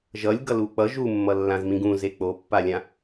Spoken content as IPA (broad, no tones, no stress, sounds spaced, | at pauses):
ʒ ʌ lʲ ɡ ʌ l u k͡p ʌ ʒ u mː ʌ lː ã z m ĩ ɡ ũ z e k͡p o pː a lʲ ã